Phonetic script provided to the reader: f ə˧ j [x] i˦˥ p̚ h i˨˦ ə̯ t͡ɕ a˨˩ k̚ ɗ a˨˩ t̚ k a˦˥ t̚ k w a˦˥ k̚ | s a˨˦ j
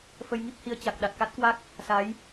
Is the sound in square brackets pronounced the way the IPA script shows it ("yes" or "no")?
no